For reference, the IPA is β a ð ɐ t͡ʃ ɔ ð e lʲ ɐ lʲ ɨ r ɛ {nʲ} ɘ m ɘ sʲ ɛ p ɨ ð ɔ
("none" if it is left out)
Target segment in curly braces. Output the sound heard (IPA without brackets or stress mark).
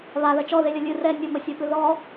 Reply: nʲ